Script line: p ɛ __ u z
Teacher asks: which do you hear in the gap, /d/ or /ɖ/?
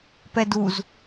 d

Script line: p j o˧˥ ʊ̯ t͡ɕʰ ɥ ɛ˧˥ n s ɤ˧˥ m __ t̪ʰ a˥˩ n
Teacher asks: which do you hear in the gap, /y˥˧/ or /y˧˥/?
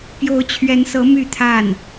y˥˧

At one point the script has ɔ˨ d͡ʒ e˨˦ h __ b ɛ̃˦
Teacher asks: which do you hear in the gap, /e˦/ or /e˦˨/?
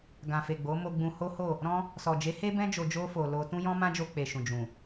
e˦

